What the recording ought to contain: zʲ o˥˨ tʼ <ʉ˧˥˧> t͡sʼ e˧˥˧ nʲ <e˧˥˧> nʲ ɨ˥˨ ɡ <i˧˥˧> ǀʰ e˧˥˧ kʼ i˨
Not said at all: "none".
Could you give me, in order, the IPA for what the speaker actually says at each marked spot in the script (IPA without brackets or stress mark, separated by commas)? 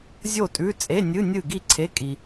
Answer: ʉ˧˥˧, ɨ˧˥˧, i˥˨